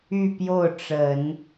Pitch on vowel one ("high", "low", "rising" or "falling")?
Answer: falling